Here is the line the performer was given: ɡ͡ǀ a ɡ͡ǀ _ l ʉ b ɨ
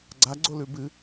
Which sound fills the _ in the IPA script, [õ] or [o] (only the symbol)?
o